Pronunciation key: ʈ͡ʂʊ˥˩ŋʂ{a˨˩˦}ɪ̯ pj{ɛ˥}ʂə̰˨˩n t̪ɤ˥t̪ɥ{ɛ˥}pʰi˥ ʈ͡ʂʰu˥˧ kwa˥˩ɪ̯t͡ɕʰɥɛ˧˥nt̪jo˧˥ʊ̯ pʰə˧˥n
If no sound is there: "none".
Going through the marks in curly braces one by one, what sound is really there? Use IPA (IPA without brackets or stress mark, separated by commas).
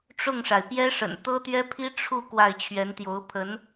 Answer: a˩, ɛ˥, ɛ˥